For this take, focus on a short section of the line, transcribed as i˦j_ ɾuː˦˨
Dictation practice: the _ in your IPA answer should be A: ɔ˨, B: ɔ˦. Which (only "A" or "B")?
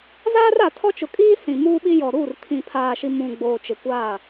A